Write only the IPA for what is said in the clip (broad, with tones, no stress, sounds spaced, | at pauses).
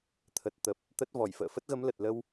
t̪ʰ ə˨˩ t̚ t̪ ə˨˩ p̚ | t̪ ə˦˥ t̚ v ɔ˧˩ j f ə̰ː˧˨ f ə˦˥ t̚ ɣ ə˨˦ m l ə˨˩ t̚ l ə˧ w